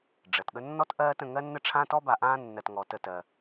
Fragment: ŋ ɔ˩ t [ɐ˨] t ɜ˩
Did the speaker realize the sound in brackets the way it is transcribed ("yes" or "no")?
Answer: no